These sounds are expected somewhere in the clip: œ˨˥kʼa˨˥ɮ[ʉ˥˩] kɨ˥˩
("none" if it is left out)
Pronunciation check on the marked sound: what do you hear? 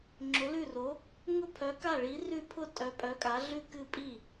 ʉ˥˩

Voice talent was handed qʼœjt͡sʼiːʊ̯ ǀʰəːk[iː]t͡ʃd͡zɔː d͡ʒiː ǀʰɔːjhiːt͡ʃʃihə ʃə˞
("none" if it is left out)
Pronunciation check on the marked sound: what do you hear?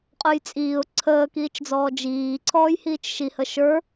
iː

